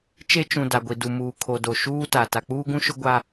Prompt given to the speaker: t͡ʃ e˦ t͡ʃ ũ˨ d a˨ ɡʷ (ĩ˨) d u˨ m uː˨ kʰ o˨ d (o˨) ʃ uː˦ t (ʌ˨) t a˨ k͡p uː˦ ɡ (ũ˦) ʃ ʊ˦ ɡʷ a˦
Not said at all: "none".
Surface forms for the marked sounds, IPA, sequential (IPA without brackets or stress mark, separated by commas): i˨, o˨, a˨, ũ˦